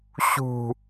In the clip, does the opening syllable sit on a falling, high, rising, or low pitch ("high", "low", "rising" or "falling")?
low